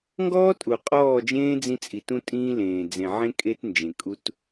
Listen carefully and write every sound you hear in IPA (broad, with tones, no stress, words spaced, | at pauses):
ŋɡɔː˦tʼu˨qʼɔː˦˨d͡ʒẽː˦ d͡zĩ˦t͡sʼi˨tũ˦tʼĩː˦ lẽː˨d͡zẽ˨ʕẽ˦ kʼe˦tnd͡ʒẽ˨ kʼu˦t